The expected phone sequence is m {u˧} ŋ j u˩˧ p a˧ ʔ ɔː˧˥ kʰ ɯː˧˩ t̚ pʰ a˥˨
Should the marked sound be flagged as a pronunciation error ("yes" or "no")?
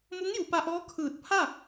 yes